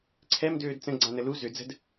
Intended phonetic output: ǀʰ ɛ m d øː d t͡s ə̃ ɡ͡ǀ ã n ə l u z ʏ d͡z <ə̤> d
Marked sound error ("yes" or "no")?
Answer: no